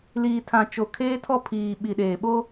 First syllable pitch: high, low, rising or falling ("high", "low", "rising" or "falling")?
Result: low